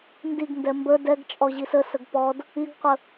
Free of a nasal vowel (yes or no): yes